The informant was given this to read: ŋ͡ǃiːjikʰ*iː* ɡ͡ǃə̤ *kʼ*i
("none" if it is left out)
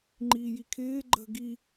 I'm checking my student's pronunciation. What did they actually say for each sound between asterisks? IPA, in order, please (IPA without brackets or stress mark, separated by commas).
ɪː, ɡ